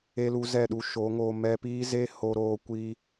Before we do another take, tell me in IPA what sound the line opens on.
e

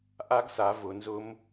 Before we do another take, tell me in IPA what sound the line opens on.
ʔ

